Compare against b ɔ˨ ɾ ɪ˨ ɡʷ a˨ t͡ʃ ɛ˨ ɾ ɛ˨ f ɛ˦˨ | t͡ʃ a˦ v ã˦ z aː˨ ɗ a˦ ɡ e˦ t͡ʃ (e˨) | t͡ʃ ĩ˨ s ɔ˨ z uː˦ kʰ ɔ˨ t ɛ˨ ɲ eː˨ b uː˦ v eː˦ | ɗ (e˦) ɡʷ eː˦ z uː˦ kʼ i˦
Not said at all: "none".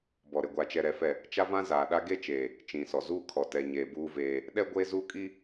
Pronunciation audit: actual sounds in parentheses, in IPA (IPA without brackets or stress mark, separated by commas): eː˨, ɛ˦